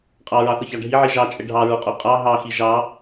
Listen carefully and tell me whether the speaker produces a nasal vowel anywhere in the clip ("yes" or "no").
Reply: no